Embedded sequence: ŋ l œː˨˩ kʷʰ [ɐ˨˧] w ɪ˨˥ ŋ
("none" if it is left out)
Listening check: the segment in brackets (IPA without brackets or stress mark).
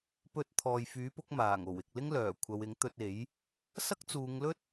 ɐ˨˧